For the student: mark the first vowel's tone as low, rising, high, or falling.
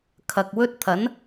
low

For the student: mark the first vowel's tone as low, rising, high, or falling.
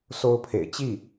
high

